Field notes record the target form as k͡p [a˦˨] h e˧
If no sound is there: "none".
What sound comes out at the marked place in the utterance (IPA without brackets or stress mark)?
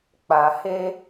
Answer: a˨